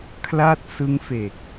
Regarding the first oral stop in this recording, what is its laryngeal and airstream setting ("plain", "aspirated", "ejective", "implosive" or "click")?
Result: aspirated